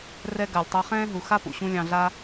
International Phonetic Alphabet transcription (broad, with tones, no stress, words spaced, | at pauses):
rɛ˦ɡa˨lʲ tˤɛ˧χɛ̃ː˦ɦu˨xa˦ pṵ˨ɕũ˦ lʲɑ̃˧ɮa˦